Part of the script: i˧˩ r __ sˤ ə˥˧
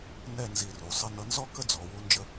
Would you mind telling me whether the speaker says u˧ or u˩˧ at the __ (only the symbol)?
u˩˧